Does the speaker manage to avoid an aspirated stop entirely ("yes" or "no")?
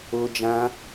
yes